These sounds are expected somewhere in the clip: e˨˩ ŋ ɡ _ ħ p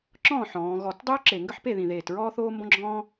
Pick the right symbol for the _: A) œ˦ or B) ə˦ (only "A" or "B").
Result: B